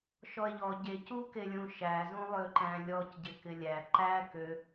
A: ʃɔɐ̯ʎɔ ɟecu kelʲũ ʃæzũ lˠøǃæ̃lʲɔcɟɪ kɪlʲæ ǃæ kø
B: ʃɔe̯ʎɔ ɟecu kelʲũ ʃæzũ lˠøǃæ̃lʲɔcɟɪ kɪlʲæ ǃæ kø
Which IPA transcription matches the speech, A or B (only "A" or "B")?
B